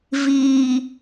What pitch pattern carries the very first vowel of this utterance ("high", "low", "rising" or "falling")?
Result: low